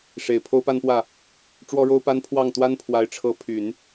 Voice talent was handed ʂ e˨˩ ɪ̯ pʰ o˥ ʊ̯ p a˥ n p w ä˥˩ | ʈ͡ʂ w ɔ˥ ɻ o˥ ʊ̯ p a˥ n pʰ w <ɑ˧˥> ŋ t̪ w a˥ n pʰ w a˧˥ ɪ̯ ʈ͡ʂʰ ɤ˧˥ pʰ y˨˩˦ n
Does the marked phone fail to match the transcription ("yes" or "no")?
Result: yes